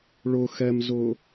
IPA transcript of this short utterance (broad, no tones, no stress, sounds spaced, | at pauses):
ɭ ʊ x ɛ m z ʊ